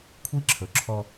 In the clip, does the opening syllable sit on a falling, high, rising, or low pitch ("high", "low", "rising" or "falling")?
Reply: high